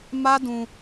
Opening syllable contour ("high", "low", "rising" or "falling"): high